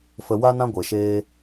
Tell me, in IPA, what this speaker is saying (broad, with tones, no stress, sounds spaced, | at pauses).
f ə˨ w a˦ n ã˦ ɡʷ e˨ ʃ eː˦